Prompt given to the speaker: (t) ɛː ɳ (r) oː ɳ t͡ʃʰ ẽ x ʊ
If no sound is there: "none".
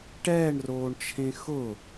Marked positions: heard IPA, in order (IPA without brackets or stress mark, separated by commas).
ʈ, r